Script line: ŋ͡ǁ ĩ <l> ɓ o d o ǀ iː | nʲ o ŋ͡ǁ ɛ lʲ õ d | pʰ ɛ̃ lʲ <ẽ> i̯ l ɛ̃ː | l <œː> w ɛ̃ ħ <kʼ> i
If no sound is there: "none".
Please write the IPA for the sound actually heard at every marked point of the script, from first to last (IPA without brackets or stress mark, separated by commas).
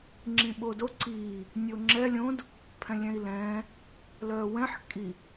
none, ɛ̃, œː, kʼ